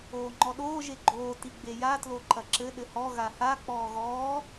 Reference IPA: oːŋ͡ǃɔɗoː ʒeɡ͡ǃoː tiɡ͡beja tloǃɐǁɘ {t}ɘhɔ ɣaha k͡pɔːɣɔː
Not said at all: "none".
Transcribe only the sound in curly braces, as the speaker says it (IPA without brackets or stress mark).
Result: ɗ